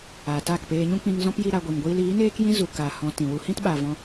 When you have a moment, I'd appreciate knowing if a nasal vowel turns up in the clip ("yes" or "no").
yes